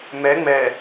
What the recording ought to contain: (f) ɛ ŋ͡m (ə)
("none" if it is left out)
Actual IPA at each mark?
m, ɛ

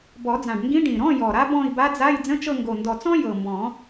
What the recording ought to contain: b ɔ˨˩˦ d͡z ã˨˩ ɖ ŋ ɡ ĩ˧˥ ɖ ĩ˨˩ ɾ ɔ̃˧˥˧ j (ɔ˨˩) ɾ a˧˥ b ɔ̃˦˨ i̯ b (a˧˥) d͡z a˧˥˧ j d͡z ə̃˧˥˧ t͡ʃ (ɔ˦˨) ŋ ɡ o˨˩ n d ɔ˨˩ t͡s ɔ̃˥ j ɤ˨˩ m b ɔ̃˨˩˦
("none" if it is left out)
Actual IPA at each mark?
ɔ˨˩, a˧˥, ɤ˦˨

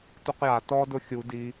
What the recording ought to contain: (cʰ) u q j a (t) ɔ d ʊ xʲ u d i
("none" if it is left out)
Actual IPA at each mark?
t, t

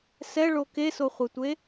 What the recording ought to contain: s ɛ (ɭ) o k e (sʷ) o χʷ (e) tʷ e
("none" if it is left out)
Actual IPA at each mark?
ɭ, s, e

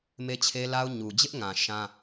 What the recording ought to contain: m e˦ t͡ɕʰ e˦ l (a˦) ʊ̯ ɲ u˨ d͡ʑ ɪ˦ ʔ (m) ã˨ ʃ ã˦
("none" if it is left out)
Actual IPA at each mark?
a˦, ŋ

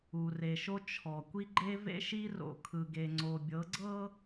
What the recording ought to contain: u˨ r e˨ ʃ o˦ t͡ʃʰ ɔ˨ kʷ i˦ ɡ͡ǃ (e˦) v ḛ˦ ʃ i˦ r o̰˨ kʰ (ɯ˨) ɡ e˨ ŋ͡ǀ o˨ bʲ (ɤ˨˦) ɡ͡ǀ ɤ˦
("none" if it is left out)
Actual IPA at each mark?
e˦, ɯ˨, ɤ˨˦

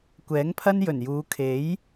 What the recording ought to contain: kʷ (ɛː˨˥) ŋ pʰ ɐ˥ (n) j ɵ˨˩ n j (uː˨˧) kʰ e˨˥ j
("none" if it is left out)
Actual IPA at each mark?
ɛː˨˥, n, uː˨˧

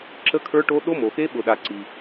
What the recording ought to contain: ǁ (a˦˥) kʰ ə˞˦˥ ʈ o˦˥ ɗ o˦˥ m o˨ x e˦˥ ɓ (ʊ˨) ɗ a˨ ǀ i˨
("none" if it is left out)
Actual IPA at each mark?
ə˦˥, ʊ˨

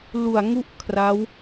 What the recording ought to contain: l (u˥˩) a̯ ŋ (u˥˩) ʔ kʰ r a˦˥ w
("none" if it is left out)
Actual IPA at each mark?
u˨˩, u˥˩

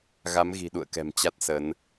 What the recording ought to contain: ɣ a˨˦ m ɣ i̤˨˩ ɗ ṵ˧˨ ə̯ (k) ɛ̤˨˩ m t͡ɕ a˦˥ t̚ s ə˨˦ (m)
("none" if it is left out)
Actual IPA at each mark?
k, n

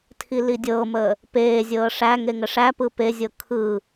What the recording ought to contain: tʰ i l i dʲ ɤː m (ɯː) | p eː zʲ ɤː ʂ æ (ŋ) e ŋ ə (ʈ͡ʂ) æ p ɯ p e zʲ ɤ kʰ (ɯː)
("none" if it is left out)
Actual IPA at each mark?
əː, ŋ, ʂ, ɯː

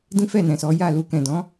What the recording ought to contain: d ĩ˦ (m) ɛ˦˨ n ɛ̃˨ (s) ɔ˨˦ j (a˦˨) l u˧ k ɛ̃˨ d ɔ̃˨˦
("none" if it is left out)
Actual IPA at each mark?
f, s, a˦˨

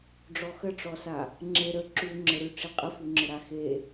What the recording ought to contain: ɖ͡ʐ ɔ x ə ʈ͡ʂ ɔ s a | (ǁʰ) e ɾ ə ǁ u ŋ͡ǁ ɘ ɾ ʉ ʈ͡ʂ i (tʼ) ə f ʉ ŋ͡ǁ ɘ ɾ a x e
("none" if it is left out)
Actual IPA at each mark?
ŋ͡ǁ, qʼ

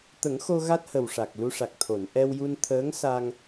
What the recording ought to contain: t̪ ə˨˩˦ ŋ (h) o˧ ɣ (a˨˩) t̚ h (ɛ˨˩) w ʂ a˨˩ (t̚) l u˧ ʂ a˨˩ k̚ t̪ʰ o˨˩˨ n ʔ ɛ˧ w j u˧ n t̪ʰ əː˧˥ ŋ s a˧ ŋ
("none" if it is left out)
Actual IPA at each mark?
x, a˦˥, ə˨˩, k̚

